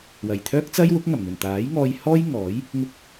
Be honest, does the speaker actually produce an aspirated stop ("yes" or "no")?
yes